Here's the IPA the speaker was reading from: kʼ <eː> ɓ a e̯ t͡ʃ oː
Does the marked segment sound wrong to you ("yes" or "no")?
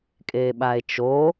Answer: no